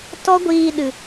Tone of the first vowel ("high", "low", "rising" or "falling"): high